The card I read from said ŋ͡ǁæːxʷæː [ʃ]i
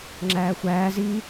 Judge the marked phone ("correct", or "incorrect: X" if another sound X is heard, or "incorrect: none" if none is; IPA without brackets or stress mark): incorrect: z